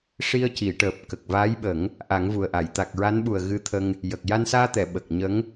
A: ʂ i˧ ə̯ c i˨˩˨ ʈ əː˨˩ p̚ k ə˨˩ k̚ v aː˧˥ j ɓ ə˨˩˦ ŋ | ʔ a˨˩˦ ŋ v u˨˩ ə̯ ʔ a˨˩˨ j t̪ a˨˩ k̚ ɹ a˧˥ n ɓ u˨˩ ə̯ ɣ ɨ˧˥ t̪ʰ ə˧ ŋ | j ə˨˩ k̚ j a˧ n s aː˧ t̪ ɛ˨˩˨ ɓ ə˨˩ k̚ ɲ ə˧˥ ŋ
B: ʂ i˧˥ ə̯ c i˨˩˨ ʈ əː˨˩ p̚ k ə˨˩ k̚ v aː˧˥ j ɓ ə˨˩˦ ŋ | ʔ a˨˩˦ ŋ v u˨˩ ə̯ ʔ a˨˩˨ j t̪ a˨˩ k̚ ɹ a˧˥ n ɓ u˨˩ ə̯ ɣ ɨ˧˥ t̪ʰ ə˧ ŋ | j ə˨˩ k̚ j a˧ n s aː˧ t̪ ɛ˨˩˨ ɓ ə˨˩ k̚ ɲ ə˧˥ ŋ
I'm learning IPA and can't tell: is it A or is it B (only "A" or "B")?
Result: A